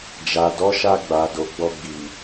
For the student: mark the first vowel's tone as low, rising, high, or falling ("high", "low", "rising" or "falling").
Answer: low